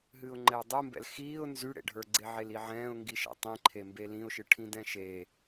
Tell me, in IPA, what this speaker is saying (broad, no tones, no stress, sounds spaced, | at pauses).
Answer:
ɦ ɨː ʊ̯ ŋ͡ǃ ɛ ʊ̯ dˤ u m b ɛ̰ l x iː ʊ̯ n z y ɽ ḛ ɖʱ ə˞ ɡ͡ǀ e ʕ e l i ʕ ɛ̃ː ʊ̯ ŋ ɡ i ʃ ɛ̰ tˤ ĩ ǃʰ e m b e l ĩ ʊ̯ ʃ ɨ ʈʰ ĩ d ɛ̃ ʃ e